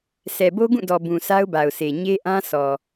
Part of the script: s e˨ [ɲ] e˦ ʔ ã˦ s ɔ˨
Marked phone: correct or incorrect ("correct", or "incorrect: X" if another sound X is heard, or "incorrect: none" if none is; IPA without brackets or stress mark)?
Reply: correct